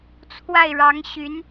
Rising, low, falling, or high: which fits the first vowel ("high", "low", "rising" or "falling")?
falling